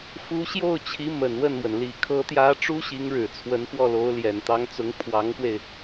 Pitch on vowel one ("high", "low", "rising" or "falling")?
rising